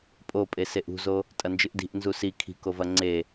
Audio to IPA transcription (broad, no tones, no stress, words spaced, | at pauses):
pʼopʼe seʔṳzo | tʼɐnd͡ʒɨʔdi̤ʔ nzusi kʰi̤kovɐ ŋ͡ǀe